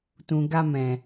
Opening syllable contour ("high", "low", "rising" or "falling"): low